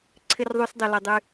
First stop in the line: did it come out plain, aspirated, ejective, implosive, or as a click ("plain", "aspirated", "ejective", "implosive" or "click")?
click